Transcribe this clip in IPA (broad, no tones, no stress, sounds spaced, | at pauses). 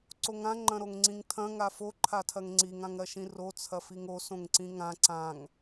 ǀ o ŋ ã ŋ͡ǃ ɐ̃ ɾ o ŋ ŋ͡ǀ ĩ ŋ tʰ ɐ̃ ŋ a f o ǃʰ a tʰ ɐ ŋ ŋ͡ǀ i ŋ ã ŋ ɾ ɐ ʃ ĩ r o t͡sʰ ɐ f i ŋ o s õ ŋ ǀ ĩ ŋ ã ǀ ã ŋ